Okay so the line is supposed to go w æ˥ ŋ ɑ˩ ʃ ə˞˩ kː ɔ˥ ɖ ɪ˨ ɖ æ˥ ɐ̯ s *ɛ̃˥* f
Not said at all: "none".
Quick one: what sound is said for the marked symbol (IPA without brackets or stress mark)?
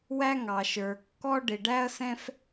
ɛ̃˥